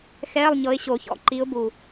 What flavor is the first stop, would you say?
click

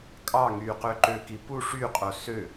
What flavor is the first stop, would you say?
ejective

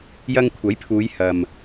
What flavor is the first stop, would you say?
aspirated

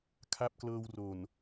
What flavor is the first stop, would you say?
aspirated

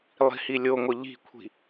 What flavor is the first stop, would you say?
aspirated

